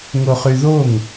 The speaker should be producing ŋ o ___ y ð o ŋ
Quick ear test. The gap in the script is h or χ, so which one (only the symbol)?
χ